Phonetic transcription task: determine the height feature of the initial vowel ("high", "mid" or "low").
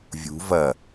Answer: high